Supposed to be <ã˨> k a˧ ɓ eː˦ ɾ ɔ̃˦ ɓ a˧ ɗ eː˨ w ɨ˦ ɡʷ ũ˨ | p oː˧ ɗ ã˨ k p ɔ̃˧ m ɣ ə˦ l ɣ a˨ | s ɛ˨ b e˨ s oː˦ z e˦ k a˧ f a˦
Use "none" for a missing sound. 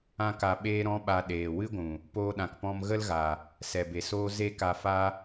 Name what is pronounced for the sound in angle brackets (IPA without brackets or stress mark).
ã˦